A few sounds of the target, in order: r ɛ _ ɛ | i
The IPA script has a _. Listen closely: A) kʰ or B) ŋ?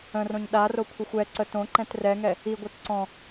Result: B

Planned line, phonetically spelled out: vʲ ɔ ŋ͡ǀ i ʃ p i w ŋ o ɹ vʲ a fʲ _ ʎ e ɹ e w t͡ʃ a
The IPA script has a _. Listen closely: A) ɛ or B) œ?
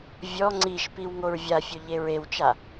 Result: B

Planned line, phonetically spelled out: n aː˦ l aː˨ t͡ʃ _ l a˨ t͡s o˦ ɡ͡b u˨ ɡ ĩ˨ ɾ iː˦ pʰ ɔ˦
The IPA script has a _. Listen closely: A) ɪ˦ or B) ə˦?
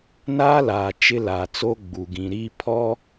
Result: A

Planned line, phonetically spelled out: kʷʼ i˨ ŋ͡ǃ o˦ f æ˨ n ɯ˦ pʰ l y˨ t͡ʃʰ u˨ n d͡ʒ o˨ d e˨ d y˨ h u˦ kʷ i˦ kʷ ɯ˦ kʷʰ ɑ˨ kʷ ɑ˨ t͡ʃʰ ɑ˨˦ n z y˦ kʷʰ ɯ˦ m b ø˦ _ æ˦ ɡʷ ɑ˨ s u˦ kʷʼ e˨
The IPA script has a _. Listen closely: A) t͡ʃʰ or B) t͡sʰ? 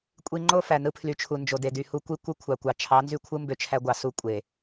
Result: A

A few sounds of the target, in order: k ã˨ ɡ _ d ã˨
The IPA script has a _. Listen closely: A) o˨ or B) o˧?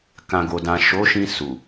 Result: A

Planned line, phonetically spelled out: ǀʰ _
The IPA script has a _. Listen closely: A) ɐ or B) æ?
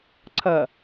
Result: A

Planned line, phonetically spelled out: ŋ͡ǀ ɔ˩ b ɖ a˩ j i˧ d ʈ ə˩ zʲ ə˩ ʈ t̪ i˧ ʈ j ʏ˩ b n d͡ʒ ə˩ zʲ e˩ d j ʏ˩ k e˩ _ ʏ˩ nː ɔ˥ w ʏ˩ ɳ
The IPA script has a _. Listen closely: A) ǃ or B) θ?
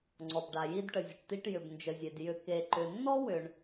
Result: A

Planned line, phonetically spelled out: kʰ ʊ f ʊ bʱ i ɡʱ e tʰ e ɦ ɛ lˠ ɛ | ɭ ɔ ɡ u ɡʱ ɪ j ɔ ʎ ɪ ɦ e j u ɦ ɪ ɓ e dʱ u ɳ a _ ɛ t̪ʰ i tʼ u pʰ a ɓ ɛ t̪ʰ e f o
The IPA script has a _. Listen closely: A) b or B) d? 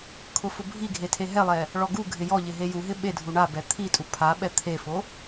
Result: A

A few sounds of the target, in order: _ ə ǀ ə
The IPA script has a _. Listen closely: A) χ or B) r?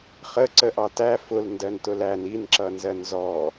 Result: A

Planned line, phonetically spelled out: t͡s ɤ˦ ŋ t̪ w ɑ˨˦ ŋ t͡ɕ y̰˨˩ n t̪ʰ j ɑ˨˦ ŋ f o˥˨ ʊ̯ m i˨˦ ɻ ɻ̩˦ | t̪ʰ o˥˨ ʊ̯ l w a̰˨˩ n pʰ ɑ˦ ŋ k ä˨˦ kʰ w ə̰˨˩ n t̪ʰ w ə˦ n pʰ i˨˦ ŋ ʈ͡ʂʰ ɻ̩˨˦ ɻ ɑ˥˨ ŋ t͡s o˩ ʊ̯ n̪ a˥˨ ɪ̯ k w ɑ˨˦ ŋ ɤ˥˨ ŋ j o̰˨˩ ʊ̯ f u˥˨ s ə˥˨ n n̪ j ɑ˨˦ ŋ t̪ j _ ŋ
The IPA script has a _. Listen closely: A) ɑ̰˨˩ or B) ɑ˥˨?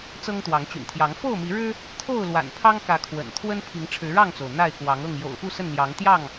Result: B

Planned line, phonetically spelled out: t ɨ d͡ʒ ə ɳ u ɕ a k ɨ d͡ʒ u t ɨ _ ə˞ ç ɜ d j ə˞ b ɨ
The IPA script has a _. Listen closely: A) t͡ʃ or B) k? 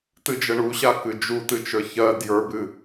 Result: A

